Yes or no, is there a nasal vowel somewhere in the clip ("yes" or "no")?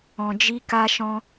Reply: yes